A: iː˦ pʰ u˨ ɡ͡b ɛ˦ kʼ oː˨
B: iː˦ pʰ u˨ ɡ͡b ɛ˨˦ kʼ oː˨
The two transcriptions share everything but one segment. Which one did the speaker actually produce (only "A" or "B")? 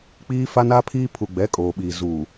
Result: B